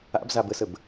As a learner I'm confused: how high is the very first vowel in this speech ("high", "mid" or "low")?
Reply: low